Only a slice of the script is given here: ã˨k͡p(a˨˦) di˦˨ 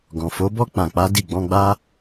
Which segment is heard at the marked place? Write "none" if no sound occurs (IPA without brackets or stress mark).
a˨˦